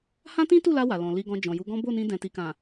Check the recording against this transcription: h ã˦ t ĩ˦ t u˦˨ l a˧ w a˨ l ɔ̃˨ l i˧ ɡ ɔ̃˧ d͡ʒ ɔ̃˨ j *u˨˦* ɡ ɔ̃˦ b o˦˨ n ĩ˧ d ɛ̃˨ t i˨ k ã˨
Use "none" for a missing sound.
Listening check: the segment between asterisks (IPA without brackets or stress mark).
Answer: u˨˦